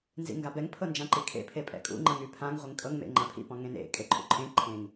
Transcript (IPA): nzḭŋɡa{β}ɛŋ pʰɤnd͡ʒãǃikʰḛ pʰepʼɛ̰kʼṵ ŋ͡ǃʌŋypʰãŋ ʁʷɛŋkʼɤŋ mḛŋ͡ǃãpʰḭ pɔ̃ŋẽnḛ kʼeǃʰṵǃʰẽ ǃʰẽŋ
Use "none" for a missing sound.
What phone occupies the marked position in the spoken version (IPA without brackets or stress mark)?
b